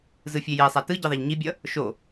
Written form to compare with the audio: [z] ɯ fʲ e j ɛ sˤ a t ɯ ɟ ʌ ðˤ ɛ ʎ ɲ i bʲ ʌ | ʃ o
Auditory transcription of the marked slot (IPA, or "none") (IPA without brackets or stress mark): z